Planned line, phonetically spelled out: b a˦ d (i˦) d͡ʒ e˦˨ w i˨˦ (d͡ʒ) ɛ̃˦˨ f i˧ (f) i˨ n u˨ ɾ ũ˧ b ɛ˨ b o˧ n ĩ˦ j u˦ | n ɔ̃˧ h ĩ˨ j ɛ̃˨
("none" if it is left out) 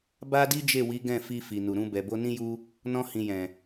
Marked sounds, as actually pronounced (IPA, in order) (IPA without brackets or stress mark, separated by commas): i˦, ɡ, f